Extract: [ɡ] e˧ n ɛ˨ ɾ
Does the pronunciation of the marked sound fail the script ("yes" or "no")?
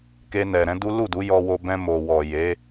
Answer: yes